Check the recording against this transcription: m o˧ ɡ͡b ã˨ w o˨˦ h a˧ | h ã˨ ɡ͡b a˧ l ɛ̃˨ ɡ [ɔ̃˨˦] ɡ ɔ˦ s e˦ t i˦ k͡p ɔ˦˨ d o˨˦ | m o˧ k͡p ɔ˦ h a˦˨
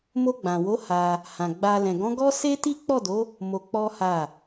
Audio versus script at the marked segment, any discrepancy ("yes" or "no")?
no